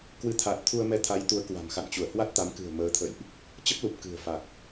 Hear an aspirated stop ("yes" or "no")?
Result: yes